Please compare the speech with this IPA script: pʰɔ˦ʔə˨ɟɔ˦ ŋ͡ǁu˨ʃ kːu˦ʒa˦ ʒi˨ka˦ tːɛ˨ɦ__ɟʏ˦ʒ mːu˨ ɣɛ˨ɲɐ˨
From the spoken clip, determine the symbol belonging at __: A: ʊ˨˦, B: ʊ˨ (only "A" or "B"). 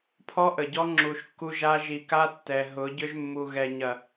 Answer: A